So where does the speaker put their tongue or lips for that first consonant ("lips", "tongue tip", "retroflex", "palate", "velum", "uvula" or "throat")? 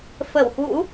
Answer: lips